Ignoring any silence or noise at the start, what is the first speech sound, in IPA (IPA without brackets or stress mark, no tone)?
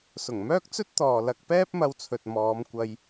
s